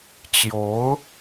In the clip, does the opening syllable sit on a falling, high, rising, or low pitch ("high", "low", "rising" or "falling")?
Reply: rising